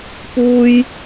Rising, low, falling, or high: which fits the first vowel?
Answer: high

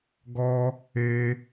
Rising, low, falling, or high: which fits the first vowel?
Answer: high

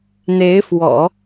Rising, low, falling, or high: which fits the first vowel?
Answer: rising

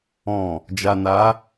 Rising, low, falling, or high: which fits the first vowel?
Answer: low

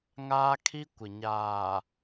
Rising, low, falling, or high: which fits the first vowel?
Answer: high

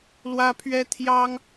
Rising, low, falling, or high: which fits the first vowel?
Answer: high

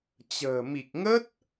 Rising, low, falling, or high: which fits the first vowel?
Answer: low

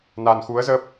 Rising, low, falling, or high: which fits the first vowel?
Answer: low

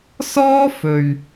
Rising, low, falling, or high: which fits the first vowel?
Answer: high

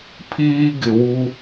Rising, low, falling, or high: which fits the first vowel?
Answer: high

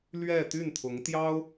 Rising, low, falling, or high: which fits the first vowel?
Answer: falling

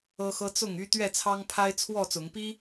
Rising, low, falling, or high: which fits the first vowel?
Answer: high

